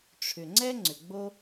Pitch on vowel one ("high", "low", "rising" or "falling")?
low